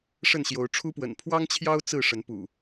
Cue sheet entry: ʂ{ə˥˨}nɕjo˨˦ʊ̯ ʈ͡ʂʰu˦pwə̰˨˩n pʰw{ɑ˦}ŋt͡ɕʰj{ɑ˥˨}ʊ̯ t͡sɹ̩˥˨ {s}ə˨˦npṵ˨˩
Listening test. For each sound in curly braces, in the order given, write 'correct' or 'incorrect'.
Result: correct, correct, incorrect: ɑ˦, incorrect: ʂ

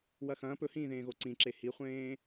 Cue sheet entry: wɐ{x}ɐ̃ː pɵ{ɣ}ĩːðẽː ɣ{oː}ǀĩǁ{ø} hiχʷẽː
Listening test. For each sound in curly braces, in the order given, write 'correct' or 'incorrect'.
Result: correct, incorrect: h, incorrect: o, incorrect: e

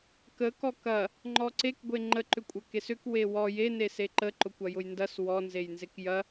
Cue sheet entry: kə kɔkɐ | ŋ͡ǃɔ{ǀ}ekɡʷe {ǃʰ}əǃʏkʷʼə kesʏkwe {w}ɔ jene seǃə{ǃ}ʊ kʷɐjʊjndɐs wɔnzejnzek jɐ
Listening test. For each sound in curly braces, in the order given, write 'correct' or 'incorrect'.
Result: correct, incorrect: ŋ͡ǃ, correct, correct

